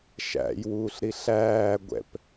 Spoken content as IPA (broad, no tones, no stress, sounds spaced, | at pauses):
ʃ æ̰ j w uː ɬ ɾ i ɬ æː ɡʷ ɛ̰ p